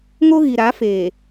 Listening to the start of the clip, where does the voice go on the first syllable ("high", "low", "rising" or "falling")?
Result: high